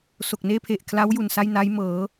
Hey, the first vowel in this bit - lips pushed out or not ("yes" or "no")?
yes